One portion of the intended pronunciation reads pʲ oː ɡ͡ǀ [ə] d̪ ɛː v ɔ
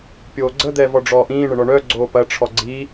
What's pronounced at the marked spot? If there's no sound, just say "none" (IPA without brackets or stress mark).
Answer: ə